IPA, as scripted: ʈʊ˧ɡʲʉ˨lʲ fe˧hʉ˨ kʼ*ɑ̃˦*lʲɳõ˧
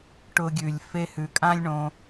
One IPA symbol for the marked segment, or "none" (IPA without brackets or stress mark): ã˦